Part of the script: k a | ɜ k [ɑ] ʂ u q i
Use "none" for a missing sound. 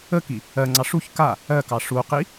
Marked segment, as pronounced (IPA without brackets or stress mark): ɑ